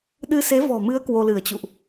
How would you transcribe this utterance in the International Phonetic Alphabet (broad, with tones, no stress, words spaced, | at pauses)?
ɗɨ˧se˨˦vɔ̤˨˩mɨ˨˦ə̯ kwo˧lɨ˧˩ə̯t͡ɕṵ˧˨ʔ